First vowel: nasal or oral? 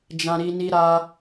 nasal